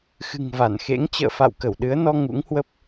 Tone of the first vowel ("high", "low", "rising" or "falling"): low